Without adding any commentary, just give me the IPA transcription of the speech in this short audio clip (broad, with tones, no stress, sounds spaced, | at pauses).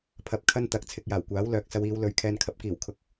pʰ ɐ˧ p̚ kʰ ɐ˥ n t̪ ɐ˨˥ k̚ t͡sʰ ɪ˧ k̚ j aː˨˩ w kʷ aː˨˥ w l œː˨ k̚ s ɐ˨˧ w iː˨˧ w l ɵ˧ ɥ kʰ ɛː˧ n kʰ ɐ˨˥ p̚ k iː˨˩ w kʰ ʊ˨˥ k̚